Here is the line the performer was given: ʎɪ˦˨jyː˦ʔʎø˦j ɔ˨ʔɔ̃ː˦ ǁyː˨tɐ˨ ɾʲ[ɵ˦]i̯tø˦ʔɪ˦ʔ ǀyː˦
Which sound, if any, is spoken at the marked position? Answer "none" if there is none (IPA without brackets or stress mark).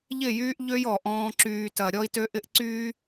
ɔ˦